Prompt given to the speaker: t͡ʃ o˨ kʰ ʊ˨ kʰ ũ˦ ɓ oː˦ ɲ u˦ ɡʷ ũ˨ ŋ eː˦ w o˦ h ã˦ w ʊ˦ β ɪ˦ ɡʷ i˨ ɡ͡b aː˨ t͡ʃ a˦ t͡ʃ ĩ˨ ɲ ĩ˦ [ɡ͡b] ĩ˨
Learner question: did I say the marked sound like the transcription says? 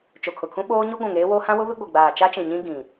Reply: no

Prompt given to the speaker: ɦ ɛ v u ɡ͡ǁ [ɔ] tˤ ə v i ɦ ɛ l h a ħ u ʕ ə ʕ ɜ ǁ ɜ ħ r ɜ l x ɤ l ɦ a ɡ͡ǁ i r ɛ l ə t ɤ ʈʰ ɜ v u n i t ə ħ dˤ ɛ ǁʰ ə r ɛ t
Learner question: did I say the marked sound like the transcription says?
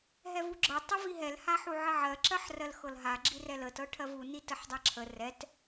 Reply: no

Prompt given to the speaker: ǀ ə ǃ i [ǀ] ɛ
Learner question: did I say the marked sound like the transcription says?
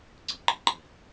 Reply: no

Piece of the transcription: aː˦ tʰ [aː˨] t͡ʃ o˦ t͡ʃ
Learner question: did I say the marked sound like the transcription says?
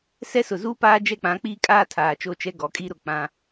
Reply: yes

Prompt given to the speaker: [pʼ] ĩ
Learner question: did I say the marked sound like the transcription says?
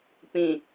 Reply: no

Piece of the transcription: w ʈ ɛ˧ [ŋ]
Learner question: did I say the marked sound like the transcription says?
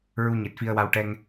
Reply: yes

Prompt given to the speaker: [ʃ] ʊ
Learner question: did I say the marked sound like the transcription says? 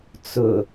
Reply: no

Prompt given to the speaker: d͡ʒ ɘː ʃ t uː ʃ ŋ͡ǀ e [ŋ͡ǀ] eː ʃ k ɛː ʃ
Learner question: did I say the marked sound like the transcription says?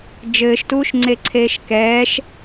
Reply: no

